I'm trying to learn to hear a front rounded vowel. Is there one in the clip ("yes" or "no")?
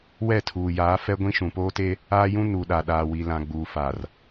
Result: no